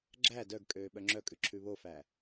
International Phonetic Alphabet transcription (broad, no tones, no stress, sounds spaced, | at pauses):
ɡ͡ǁ æ d œ ɡ kʼ øː ɓ œ ŋ͡ǁ œ kʼ ʉ ǁʰ ʉ β o f æ